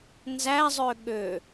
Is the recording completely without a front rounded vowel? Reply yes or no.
no